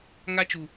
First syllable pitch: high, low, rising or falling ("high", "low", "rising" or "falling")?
high